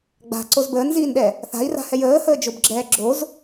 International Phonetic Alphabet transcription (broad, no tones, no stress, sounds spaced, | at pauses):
ɡ͡b a̤ ǀ o z b əː n z iː n ɗ ɛ | θ a̤ i̯ r a̤ h ɛ j əː h əː d͡ʒ o b ɡ͡ǁ ɛː ɡ͡ǁ o z